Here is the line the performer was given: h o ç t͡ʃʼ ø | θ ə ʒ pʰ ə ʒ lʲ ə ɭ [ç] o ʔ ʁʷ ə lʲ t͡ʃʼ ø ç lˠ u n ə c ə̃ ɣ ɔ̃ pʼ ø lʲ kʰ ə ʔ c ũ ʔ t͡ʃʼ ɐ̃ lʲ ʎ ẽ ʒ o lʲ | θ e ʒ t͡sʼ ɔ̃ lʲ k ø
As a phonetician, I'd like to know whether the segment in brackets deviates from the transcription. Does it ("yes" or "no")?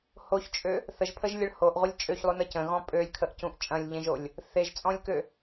yes